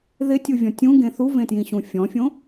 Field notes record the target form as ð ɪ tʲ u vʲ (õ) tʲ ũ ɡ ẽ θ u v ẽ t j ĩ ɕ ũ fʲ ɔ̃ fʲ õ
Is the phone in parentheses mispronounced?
yes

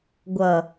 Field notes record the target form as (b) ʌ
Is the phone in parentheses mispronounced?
yes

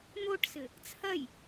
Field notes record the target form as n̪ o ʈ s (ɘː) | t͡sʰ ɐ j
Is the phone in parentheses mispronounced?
yes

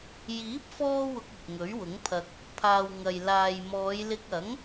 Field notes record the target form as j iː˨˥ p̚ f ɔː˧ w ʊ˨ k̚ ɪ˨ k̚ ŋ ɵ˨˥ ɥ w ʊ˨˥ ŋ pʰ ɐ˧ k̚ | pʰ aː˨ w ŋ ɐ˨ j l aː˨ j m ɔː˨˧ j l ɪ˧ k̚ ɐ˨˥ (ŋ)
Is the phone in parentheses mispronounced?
no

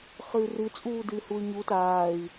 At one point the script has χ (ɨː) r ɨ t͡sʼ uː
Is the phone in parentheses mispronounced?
no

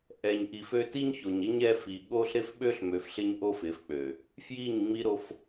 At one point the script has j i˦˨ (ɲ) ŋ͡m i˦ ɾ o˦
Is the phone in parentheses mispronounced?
no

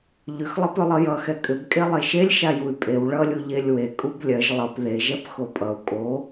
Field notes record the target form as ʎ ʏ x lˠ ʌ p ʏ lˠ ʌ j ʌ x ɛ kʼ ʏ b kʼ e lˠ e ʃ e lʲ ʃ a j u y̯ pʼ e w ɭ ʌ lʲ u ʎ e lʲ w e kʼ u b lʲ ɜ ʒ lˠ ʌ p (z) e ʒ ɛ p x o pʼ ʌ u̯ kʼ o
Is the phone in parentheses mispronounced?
yes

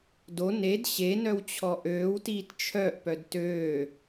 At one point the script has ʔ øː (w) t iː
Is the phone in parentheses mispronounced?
no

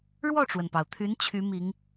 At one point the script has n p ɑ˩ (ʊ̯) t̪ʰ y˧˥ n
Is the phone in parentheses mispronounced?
no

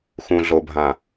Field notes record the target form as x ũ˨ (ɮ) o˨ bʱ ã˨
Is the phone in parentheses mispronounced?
no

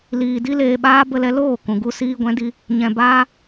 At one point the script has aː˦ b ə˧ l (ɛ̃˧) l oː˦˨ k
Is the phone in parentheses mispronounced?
yes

